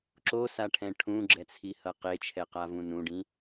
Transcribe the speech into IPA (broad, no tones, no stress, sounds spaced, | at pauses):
ǁ o s a ʈʰ ɛ̃ ʈʰ ũ ɡ͡ǁ ɛ t͡sʰ i h ʌ q e t͡ʃʰ ɛ q a v ũ n ũ ɖ ĩ